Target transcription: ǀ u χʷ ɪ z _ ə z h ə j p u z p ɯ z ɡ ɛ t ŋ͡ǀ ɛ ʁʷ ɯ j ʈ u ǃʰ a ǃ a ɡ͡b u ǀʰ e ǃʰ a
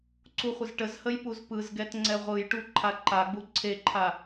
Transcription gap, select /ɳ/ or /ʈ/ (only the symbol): ʈ